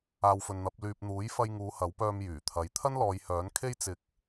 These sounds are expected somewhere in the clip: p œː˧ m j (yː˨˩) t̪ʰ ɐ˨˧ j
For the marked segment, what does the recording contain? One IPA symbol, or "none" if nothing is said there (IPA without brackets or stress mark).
yː˨˩